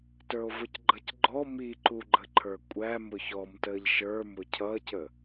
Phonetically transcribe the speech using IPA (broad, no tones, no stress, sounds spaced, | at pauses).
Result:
t ə˞ o̯ v ʊ c ɡ͡ǃ ʌ c ɡ͡ǃ ɔ m i ǃ u ɡ͡ǃ ə ǃʰ ə˞ kʷʼ æ m ʊ ç ɔ m t əː ʎ ʃ ə˞ m ʊ cʰ ʌ c ə